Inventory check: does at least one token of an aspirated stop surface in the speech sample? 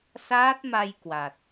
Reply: no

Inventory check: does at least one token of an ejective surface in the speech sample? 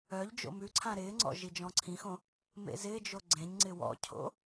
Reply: no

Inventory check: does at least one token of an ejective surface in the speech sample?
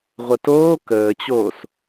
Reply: no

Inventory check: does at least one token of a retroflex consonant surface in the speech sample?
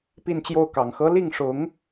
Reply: yes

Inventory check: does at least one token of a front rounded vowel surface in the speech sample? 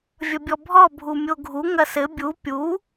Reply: no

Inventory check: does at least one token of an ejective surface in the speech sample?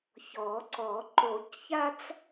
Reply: no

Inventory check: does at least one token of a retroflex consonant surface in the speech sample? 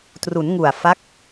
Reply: no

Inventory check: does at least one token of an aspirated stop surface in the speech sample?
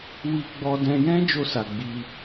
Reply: no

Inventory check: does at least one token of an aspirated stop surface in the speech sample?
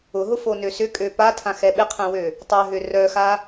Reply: yes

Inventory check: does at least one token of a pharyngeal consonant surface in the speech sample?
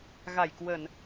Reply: no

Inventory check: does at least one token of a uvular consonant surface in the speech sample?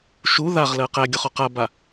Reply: yes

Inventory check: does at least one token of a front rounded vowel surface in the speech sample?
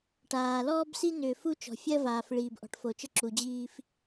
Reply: yes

